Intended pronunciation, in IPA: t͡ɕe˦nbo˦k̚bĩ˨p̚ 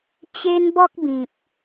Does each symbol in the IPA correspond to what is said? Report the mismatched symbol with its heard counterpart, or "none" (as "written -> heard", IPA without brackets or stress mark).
o˦ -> ɔ˦